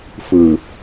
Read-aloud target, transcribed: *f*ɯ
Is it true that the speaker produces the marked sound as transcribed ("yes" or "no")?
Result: yes